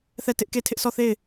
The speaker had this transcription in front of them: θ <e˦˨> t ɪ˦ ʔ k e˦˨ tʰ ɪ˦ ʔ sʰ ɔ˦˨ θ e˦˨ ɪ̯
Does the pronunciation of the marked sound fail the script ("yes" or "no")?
yes